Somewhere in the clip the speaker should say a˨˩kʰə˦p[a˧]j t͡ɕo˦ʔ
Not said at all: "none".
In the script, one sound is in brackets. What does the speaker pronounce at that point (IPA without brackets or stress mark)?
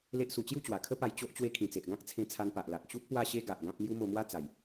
a˧